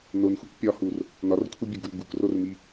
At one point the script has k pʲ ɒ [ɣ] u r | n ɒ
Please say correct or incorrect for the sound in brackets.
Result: incorrect: h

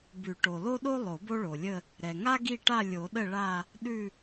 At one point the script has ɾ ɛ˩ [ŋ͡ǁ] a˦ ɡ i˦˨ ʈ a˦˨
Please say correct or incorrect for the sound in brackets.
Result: incorrect: ŋ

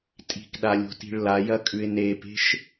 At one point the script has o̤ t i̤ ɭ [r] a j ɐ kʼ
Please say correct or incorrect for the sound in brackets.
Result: incorrect: l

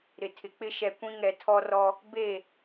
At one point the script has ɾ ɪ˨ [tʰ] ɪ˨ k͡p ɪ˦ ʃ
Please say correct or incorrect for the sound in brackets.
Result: correct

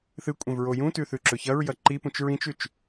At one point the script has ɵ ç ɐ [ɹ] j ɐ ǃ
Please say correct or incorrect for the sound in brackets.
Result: correct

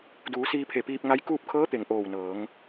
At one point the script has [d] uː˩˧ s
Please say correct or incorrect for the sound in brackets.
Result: correct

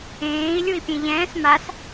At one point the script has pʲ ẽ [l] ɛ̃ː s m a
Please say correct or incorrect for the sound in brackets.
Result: incorrect: ʎ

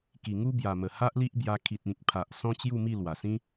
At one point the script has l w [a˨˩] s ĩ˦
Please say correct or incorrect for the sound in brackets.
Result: correct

